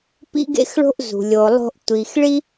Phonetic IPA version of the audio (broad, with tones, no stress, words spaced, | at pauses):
pḭ˥ɡḛ˥xɭo̤˥ʔzṳ˩ lʲo˩lˠo̤˧ʔ tʷi˩xɭi˥